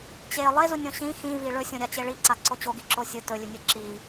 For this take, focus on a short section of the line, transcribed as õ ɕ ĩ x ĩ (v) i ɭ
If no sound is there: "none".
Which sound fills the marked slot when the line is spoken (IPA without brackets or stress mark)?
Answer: v